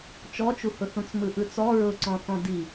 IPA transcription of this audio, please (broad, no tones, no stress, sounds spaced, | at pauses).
t͡ʃ ɔ t͡ʃ u h ʊ θ ũ t͡s m ɯ ʔ ɯ t͡s ɔ ɹ ʊ ǀ ɔ̃ θ ɔ̃ d i